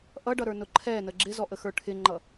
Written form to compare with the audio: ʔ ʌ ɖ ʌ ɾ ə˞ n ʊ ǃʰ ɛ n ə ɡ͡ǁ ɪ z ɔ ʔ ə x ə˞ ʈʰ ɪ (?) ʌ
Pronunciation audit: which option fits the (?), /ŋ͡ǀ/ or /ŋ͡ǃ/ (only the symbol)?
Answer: ŋ͡ǃ